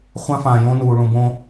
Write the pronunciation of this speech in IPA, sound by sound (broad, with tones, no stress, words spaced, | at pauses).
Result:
χʷã˦fãː˨jõ˦nuː˨ ɭũ˨bõ˦